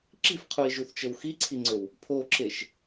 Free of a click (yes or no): no